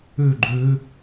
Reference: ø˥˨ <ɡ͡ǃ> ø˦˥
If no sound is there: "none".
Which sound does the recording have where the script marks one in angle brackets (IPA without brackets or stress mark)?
ɡ͡ǃ